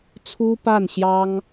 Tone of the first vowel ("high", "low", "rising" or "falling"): high